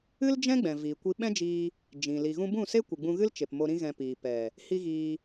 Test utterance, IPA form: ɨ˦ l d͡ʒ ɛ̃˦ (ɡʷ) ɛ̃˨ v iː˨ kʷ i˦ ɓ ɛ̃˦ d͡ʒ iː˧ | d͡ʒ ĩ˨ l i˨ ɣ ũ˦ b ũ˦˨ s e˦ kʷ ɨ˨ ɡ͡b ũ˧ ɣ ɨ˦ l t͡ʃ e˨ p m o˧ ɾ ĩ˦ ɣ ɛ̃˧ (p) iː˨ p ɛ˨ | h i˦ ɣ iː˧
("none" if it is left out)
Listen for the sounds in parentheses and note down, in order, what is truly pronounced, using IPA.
ɡ͡b, p

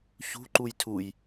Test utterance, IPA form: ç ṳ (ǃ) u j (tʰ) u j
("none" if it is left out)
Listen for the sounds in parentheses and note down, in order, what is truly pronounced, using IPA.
ǃ, tʰ

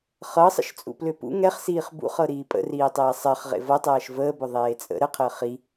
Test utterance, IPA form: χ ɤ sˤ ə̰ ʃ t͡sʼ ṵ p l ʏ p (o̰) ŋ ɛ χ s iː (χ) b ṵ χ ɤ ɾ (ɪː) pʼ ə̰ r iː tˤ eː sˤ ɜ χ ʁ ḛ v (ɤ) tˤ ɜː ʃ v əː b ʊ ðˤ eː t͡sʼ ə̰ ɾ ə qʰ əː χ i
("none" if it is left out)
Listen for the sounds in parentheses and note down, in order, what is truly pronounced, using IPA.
ṵ, χ, iː, ɤ

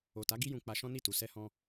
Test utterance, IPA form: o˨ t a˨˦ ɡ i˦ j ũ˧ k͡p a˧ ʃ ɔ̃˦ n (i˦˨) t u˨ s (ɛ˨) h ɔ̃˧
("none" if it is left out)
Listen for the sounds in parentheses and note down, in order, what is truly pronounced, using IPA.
i˦˨, ɛ˧

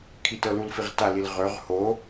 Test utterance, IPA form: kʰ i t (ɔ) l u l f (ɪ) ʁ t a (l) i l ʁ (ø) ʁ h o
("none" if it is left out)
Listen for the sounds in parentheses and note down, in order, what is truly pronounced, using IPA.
ɤ, i, l, ø

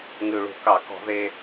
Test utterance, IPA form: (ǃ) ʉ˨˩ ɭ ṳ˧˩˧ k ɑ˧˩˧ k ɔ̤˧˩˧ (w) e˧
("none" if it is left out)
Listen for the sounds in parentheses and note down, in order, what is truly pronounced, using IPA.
ŋ, ð

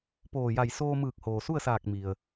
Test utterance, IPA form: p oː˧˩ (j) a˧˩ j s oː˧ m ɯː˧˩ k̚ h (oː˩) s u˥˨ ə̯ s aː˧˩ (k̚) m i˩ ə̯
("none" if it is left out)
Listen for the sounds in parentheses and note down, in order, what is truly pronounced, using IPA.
j, oː˩, k̚

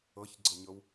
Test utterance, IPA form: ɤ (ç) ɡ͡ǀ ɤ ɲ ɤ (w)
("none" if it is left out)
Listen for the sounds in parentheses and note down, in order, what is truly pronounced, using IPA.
ç, w

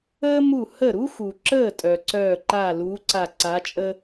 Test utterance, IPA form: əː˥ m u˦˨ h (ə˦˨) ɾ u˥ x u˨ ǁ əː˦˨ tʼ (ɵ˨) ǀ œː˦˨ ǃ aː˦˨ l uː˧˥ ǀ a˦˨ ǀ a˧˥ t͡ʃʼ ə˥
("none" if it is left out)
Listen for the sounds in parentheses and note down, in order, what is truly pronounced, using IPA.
ə˦˨, œ˨

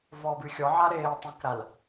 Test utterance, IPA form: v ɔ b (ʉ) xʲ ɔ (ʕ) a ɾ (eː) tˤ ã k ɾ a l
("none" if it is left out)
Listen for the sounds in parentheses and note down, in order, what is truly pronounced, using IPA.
ʉ, ʕ, eː

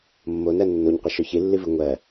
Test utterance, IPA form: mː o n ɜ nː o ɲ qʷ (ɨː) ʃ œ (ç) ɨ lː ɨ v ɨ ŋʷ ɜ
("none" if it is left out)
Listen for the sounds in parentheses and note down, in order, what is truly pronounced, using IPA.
ɨ, ç

